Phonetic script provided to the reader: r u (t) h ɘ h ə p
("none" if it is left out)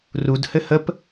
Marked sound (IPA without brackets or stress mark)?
d